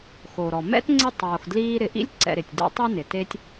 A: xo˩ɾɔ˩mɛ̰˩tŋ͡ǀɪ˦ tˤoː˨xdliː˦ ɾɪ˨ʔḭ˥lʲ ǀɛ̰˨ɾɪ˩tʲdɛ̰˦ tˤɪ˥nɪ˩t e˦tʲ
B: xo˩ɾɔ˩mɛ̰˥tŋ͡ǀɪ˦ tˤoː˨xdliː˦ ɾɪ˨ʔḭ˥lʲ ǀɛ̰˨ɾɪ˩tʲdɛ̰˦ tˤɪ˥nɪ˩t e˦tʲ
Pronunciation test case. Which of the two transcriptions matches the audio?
B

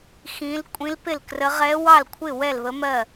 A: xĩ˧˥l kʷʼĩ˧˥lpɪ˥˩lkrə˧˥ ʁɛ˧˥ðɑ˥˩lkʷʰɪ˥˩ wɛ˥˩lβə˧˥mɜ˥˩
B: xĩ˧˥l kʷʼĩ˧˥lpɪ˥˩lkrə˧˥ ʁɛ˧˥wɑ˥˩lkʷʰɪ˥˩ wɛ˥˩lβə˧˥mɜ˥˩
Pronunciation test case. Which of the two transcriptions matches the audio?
B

